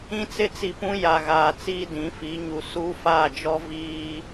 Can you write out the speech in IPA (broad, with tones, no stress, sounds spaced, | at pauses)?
ĩ˦ t͡s ɪ˦ t͡s i˨ p ũ˦ j a˨ ɣ aː˨ t͡s iː˦ d ĩ˨˦ f i˨˦ ɲ u˨ s uː˦ f aː˦˨ d͡ʒ ɔ˦ v iː˦